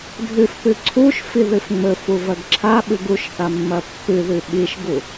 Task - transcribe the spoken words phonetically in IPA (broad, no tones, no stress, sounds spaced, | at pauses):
dʱ ɨ f p ɨ ǀʰ u ʃ f i ð ɨ f ŋ͡m ɵ f u v ɐ ɡ ǁʰ a ɓ ɨ ɡ u ʃ θ a mː ɐ pː ɨ ð ʉ ɓ i ʃ ɡ u